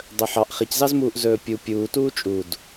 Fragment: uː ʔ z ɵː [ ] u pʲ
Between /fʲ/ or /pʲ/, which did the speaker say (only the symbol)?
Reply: pʲ